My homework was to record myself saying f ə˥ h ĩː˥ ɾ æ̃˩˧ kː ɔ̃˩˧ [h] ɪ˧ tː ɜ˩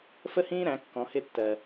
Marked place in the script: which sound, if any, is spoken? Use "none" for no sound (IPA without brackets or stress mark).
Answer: h